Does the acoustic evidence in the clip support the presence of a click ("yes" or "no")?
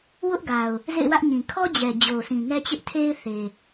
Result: no